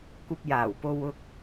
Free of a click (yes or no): yes